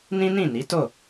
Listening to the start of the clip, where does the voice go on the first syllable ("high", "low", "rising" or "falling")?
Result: high